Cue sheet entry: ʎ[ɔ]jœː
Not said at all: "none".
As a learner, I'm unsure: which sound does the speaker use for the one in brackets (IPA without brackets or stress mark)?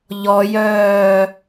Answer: ɔ